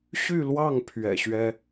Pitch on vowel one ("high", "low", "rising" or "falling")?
falling